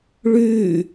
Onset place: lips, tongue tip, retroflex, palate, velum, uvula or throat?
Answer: retroflex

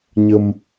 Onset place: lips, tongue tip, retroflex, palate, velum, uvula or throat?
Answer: palate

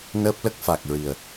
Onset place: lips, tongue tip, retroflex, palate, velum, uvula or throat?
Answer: tongue tip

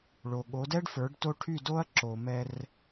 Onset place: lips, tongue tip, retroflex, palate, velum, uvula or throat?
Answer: retroflex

